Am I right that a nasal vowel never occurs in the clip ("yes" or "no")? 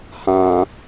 no